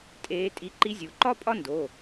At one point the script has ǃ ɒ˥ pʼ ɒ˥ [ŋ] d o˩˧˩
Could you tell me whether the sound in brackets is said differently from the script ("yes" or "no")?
yes